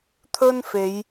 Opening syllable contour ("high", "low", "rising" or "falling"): high